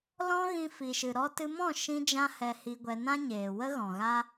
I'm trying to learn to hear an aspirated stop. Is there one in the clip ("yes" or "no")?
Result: no